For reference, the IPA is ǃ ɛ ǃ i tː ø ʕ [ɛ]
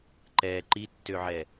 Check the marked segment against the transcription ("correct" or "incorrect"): correct